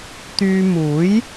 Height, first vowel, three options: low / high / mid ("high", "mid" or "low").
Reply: high